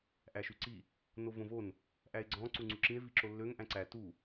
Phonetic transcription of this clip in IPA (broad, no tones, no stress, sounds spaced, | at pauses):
ʔ æ ʃ y ǀ i | n o v õ v o n | ʔ æ e̯ ɡ͡ǀ ɔ̃ ǀ u ŋ͡ǀ u ǁ ĩ e̯ v i ǁ o lː ø ŋ ʔ æ̃ ǀ æ t u